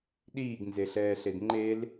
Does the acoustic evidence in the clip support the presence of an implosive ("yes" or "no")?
yes